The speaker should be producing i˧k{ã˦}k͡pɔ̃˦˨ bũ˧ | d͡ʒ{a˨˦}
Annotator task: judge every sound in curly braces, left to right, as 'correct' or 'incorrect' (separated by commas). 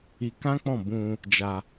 correct, incorrect